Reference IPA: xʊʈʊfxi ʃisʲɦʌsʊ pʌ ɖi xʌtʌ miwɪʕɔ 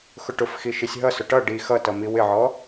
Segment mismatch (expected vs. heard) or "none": p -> ʈ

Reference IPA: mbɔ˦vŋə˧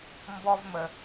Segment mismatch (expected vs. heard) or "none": ŋ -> m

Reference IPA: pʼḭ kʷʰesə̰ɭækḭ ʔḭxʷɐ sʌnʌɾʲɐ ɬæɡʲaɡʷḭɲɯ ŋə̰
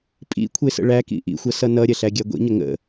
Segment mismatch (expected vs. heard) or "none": ɯ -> ə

